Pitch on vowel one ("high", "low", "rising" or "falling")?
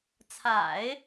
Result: low